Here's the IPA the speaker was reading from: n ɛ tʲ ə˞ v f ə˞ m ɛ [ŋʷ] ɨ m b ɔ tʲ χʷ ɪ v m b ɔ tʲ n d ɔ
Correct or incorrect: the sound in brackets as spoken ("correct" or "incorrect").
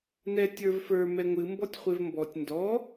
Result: correct